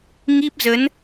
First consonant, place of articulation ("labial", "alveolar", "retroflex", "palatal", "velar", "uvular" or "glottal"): velar